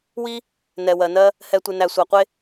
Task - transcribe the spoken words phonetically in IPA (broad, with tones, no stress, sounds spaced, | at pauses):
w i˦ | n ɛ˨ w ɜ˨ n ɜ˦ | h ɛ˨ tʷ e˨ n æ˨ sʷ æ˨ qʷ e˦